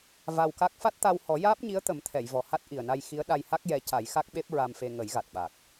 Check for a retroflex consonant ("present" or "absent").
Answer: absent